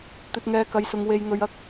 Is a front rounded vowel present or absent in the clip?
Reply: absent